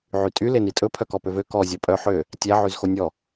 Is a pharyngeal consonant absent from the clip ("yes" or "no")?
no